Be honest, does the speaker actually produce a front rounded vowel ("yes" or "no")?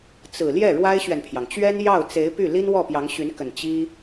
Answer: yes